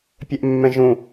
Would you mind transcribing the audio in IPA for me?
pʲ ɛ ʔ mː ɛ̃ ʒ ũ

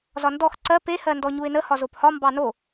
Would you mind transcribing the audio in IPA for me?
z ɒ n d ɔ x ǀ ɜ p e h ɜ n d ɔ ɲ u ɪ̯ n ə h ɒ z o p h ɒ m b ɑ n o

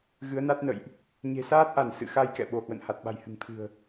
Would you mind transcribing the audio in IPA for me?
ɣ ɨ˨˦ ə̯ n a˦˥ t̚ n ə̰˧˨ j ʔ | ɲ e̤˨˩ s aː˦˥ t̚ ʔ a˧˩ n s ɨ̰˧˨ x a˧ j k ɛ̰˧˨ ɓ o˧˩ h w ə̰˧˨ n h a˨˩ t̚ ɓ a̤˨˩ j h ɨ̤˨˩ ŋ t̪ʰ ɨ̤˨˩ ə̯

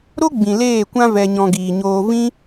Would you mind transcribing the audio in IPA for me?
ɾ o˦ ɡ͡b ĩ˨ l eː˦˨ kʷ ã˦ v ɛ˧ ɲ ɔ̃˧ ɡ iː˨ ɲ oː˧ v ĩ˦

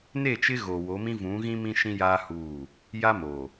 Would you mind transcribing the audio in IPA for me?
n e˦˨ t͡ʃ ɪ˦ ɣ oː˨ w o˨˦ m ĩ˦ v ũ˨˦ ɣ ĩ˦ m ĩ˦ ʃ ĩ˦ j aː˦ h uː˦˨ | j a˦ m oː˨

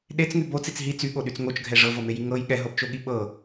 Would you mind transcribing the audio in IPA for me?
ɗ e t͡s ŋ y b o t͡s i t͡s ɦ i t͡s y ɠ o ɗ y t͡s ŋ o t͡ʃ ɡʱ ɛ ʐ ɤ v ɤ m e j i ŋ ɤ j ɠ ɛ ɦ ɤ b t͡ʃ o ɠ i ɓ ɤ

